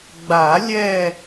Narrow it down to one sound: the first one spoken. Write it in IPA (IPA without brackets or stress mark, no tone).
ɡ͡b